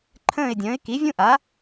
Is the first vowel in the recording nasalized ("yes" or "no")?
yes